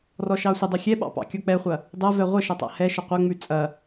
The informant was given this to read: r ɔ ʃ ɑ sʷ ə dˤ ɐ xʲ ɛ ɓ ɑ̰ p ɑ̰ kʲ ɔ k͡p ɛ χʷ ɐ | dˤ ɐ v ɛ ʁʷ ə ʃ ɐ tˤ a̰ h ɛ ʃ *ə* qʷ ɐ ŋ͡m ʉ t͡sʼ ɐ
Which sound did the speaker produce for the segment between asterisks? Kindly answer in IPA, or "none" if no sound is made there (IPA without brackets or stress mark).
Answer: ə